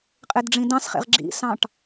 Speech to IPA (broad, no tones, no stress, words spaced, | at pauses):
qʼedɖ͡ʐĩdɑ̃sχḛʁ ɡ͡ǁḭsɑ̃ʈ